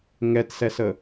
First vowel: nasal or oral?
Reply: oral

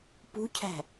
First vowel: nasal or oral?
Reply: oral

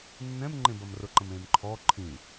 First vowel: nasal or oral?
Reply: nasal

